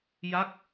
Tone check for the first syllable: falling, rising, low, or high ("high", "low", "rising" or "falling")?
falling